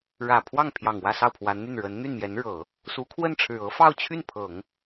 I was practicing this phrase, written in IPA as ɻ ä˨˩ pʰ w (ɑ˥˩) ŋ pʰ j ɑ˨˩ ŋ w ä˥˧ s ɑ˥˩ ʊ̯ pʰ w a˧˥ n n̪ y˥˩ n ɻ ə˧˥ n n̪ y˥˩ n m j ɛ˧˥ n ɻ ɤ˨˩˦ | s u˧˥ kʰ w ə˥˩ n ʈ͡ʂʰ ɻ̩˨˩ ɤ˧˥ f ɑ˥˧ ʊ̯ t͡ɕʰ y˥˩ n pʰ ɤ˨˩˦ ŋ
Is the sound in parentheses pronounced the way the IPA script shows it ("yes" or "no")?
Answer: yes